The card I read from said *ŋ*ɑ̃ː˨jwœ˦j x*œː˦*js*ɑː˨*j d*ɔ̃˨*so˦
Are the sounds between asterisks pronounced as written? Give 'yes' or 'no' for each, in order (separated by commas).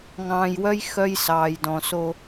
yes, no, yes, yes